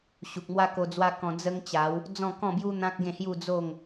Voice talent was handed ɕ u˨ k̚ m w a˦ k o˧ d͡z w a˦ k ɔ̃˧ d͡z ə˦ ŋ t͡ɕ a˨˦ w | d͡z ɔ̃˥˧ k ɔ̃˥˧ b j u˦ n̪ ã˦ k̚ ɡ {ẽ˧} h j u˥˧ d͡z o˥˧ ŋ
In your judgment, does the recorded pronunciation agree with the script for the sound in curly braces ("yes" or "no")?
no